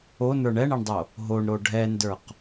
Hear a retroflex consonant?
yes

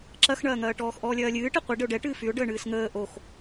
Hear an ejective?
no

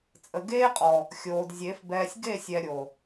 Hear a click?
no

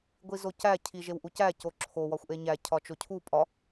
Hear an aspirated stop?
yes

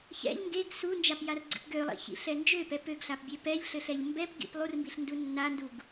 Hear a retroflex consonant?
no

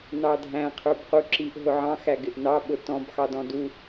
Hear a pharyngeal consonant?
yes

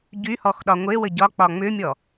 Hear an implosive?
yes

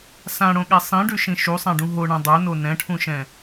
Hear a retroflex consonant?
yes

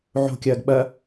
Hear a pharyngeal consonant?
yes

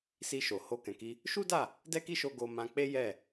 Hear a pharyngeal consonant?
no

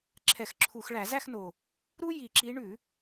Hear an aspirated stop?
yes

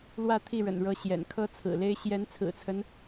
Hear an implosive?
no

